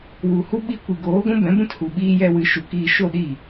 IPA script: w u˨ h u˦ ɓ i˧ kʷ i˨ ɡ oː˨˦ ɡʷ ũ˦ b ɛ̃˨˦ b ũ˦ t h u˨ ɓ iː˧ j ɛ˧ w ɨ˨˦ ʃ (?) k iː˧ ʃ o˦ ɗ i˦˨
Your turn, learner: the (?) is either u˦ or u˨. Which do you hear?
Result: u˨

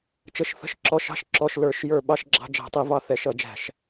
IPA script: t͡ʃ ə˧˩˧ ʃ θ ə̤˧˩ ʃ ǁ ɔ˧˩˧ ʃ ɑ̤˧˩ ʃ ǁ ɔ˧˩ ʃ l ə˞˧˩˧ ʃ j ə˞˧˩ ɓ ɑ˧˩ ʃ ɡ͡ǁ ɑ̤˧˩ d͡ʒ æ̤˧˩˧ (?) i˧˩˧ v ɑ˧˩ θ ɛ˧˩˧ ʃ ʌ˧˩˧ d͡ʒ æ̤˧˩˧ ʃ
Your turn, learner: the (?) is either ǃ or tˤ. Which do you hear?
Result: tˤ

